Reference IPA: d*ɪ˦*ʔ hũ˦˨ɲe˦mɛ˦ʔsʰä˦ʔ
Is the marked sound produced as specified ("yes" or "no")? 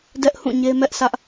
no